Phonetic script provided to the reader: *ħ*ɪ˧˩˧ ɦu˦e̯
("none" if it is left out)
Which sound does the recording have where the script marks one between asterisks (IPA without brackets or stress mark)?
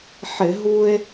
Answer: ħ